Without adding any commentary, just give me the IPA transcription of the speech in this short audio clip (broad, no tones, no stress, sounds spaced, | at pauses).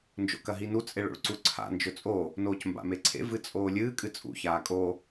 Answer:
n d͡ʒ o̰ k ɐ ɦ i n u t͡sʼ e ɭ o̰ ɭ ǀ u ǀʰ a̰ n d͡ʒ ɵ t͡sʼ o | n oː c m b a̰ m e ǀʰ ḛ v ɨ t͡sʼ oː lʲ ɨː kʼ ɨ t͡sʼ ṵ ç aː kʼ o